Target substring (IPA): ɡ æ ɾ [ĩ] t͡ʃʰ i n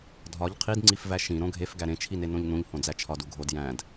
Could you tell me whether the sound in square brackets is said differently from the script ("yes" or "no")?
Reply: yes